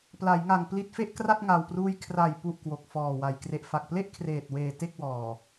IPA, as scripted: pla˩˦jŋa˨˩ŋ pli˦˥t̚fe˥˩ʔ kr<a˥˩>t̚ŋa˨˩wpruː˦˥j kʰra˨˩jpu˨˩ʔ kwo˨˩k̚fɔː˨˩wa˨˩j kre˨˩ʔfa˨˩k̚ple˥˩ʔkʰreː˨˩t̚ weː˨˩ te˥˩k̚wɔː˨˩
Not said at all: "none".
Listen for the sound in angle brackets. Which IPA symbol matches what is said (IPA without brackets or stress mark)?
a˥˩